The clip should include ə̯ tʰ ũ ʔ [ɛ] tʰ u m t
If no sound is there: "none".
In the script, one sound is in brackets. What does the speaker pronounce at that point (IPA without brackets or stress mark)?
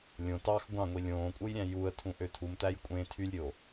ø